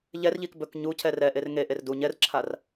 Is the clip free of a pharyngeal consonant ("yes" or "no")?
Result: yes